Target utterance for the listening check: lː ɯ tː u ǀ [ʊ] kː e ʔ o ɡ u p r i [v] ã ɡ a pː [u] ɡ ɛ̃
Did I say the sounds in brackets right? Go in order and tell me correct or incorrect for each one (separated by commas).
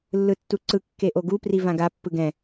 incorrect, correct, incorrect